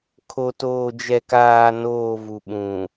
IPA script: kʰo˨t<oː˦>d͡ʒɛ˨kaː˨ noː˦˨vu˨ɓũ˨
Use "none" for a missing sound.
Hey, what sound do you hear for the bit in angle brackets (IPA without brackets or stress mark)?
oː˨